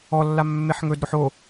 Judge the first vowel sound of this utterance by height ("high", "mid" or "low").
mid